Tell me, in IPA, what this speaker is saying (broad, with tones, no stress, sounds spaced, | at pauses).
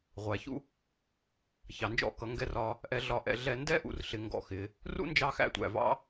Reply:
ʁʷ æ˨ ç ṵ˦ | ç ɑ˨ n d͡ʒ ɔ̰˦ k ʌ˨˦ ŋ ɡ ɛ˧ r ɒ˧ | ʔ ɛ˧ ɮ ɒ˧ ʔ ɛ̰˧ ɮ ɛ˧ n d ɛ˦ ʔ ṵ˨ r ɬ ɪ˨ ŋ ɡ ɔ̰˧ x ɪ˨˦ | r ṵ˦ n d͡ʒ ɑ˧ x æ̰˧ tʷ æ̰˨ v ɑ̰˦